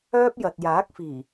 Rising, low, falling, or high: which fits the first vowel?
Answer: high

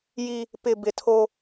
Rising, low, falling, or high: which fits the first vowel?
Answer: high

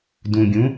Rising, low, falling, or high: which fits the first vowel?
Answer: low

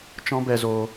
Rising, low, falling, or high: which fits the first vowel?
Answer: high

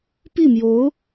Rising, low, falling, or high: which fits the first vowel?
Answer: falling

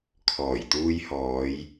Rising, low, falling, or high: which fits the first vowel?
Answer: low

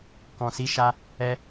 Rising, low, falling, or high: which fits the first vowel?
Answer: low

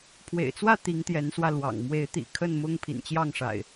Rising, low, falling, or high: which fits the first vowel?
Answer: low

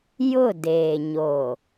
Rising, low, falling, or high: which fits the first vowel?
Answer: falling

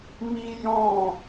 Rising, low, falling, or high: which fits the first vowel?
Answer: high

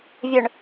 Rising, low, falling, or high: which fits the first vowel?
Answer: low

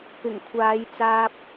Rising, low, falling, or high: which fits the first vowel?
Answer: low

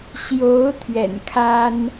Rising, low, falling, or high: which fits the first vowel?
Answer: rising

